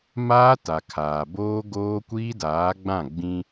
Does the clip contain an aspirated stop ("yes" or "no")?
yes